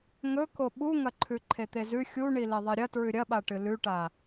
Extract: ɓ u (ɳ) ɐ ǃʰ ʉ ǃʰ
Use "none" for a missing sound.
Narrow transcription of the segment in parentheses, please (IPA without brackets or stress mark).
ŋ